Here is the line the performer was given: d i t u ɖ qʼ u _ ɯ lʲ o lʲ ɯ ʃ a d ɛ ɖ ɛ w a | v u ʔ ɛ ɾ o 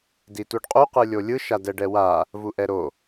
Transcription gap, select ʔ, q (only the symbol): q